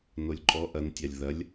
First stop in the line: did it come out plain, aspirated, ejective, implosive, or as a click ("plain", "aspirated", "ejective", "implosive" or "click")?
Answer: click